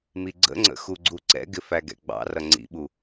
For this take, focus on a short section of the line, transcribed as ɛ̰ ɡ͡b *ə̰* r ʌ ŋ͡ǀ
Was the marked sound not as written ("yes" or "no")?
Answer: yes